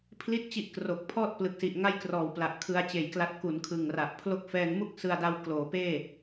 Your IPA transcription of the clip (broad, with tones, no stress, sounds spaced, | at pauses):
pʰ l i˥˩ t̚ t͡ɕ i˦˥ ʔ k r o˨˩ k̚ pʰ ɔː˥˩ t̚ p l ɯ˨˩ k̚ s i˨˩ ʔ ŋ a˥˩ j k r ɔː˨˩ w p l a˨˩ ʔ kʰ ɯ˧ a̯ t͡ɕ eː˨˩ j k l a˦˥ t̚ k u˩˦ n kʰ ɯ˨˩ ŋ r a˨˩ ʔ pʰ l o˦˥ k̚ f ɛː˧ ŋ m u˥˩ k̚ s ɯ˧ a̯ d a˦˥ w k l oː˩˦ p eː˥˩